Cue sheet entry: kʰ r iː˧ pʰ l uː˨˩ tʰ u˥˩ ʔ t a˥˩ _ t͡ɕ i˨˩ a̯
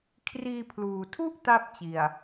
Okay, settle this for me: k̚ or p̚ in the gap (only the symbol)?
p̚